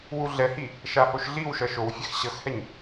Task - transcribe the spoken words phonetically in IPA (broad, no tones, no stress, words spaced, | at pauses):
wuɮɛhi | ʃahoʃɮiwʃʌ ʃowfʲɛx ɕʌxhɛɲ